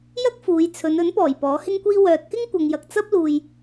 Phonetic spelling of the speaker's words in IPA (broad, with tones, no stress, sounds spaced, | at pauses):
j ɐ˥ k̚ f uː˨˧ j t͡sʰ ɵ˨˧ n ɵ˨˥ n p ɔː˨˩ j p ɔː˨˥ h ɪ˥ ŋ kʷ iː˥ w œː˨ t̚ k ɪ˥ ŋ kʷ ɐ˨ ŋ j ɐ˨ k̚ t͡s ɐ˥ p̚ l uː˨ j